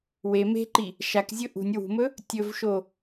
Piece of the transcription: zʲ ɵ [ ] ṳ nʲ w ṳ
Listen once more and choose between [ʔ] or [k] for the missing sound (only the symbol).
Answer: ʔ